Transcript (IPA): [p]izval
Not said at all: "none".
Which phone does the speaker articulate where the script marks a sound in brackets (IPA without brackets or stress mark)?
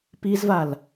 p